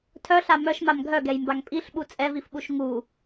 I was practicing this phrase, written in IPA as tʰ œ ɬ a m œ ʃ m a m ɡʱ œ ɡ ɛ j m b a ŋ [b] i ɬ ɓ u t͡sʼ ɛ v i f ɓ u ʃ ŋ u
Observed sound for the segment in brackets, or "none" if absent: pʼ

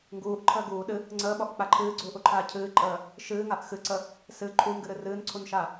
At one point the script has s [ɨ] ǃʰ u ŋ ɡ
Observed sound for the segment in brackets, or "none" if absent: ɨ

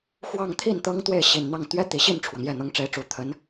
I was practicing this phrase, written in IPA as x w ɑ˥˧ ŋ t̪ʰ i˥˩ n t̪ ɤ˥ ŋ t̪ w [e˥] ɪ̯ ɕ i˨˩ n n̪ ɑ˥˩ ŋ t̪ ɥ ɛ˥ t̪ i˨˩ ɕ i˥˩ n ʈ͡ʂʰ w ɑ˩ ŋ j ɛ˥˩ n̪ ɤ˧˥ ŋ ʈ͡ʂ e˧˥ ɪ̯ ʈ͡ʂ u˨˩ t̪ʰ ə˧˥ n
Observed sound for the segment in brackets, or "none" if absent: e˥˩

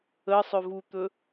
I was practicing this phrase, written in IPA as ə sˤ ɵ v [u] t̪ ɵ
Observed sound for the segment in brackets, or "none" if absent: u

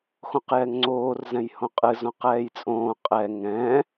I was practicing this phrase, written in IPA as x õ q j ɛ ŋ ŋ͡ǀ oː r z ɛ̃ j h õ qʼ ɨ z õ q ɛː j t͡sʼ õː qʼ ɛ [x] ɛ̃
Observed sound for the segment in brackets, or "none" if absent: ŋ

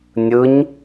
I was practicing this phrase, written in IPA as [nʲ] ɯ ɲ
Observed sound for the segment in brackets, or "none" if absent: nʲ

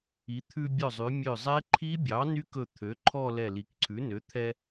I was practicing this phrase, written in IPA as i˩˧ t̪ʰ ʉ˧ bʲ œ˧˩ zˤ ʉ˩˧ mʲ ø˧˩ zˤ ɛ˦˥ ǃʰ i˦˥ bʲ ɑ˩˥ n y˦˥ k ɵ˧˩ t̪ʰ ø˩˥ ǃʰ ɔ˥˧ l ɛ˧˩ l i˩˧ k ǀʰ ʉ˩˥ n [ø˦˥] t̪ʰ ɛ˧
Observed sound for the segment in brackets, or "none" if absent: ø˩˥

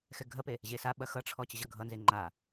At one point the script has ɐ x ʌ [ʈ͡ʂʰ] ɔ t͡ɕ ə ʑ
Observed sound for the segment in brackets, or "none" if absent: ʈ͡ʂʰ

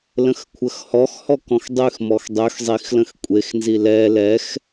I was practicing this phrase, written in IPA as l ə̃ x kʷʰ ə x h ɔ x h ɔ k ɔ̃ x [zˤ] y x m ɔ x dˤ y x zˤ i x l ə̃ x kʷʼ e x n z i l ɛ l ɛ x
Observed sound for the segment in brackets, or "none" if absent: dˤ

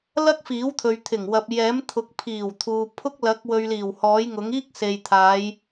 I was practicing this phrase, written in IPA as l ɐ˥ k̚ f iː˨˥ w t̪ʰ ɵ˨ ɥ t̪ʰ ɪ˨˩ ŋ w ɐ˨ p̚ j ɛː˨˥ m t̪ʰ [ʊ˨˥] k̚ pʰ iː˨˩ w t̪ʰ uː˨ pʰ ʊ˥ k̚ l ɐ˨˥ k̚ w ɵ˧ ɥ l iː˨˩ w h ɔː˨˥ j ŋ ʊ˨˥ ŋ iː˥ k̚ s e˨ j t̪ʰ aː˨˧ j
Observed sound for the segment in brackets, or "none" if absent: ʊ˨˥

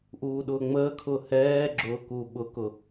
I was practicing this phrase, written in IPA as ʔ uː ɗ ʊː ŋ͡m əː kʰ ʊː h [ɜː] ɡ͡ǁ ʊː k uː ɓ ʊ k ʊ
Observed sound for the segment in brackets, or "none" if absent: ɛː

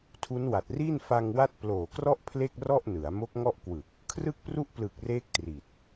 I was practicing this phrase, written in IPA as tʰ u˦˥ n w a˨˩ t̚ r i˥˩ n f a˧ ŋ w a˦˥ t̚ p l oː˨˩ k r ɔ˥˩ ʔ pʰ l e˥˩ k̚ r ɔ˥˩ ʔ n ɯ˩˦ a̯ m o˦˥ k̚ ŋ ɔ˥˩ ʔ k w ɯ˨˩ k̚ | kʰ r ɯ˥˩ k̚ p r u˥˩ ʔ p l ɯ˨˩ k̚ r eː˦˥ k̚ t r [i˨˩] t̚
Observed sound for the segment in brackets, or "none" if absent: i˨˩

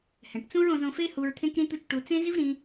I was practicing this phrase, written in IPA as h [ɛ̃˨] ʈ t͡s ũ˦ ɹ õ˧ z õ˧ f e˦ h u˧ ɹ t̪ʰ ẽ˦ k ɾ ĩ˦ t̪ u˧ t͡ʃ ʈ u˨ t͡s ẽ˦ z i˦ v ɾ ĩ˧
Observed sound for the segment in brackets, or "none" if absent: ɛ̃˨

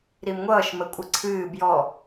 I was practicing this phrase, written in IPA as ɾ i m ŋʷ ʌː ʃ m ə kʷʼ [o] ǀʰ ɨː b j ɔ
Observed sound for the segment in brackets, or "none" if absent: ɤ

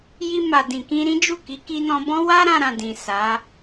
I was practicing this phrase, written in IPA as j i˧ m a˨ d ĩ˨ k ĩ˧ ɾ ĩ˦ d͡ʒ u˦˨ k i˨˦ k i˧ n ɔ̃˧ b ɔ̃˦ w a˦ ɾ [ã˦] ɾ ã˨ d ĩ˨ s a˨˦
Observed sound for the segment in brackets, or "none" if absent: ã˧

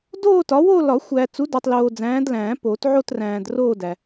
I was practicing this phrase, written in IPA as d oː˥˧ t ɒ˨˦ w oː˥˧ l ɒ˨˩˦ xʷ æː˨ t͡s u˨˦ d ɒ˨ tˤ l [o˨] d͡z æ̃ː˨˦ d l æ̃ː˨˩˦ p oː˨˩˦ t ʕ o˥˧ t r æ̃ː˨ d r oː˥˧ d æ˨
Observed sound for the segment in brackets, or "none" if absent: oː˨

